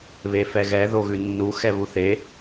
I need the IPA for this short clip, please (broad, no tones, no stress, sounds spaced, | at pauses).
β e f ɛ ɣ ɛ ð o ɣ ʉ nː u x ɛ β u θ e